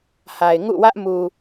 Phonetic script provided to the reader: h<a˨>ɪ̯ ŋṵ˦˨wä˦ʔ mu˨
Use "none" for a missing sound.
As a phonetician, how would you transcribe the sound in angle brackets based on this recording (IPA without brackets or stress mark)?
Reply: a˨